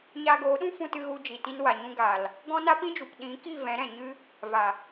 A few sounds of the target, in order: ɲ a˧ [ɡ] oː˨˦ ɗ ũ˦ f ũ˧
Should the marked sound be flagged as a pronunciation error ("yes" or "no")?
no